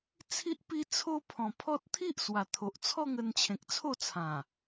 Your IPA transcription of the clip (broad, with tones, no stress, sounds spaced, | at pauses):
t͡sʰ i˦ ʔ p i˦ t͡sʰ o˦ pʰ ɔ̃˨˩ pʰ ɔ˦ t̚ t̪ʰ i˦ ʔ s w a˨˩ t̪ʰ o˨ ʔ t͡sʰ ɔ˥˧ ŋ ə˧ n t͡ɕʰ ẽ˨ k̚ t͡sʰ o˥˧ t͡sʰ ã˨˩